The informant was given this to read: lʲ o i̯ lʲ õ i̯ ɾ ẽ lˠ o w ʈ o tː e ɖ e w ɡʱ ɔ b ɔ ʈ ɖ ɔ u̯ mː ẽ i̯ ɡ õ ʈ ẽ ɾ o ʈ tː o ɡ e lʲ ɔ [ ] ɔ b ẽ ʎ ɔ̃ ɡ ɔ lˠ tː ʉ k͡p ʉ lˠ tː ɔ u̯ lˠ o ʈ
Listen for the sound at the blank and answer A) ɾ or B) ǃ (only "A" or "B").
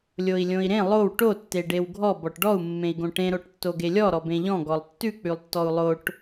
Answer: A